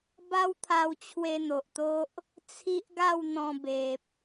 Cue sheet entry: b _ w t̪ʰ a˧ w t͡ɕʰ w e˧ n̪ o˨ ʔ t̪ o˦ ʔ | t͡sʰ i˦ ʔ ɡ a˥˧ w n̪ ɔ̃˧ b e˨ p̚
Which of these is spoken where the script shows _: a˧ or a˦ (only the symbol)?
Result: a˦